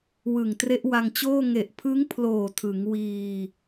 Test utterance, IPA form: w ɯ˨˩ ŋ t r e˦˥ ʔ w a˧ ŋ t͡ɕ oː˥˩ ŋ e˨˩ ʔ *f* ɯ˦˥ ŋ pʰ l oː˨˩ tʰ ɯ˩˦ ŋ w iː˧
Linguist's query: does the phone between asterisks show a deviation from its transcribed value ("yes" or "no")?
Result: yes